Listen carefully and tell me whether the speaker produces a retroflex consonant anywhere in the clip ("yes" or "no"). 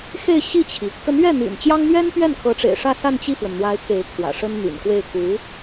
yes